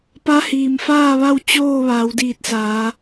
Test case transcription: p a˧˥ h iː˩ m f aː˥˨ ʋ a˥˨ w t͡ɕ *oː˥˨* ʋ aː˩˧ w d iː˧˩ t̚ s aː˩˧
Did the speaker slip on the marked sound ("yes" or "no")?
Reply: no